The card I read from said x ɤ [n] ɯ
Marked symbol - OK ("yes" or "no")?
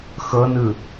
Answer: yes